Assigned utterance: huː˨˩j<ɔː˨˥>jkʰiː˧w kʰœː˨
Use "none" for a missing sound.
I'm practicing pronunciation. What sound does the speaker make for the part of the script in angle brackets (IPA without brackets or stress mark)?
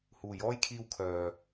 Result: ɔː˥